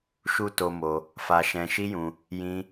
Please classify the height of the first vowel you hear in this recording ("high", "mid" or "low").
high